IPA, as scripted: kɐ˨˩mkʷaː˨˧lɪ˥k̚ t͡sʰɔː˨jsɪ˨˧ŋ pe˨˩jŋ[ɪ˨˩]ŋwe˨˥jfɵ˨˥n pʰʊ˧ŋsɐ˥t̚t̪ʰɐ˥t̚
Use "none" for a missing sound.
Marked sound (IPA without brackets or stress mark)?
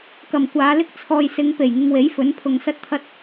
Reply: ɪ˧